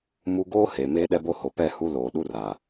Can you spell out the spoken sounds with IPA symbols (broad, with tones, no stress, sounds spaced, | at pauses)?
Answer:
m u˦ ɡ oː˦ h eː˨ m eː˦ ɗ ɛ˦ b o˦ h o˨ p ɛ˦˨ h u˦ l oː˨ ɗ u˦ r a˨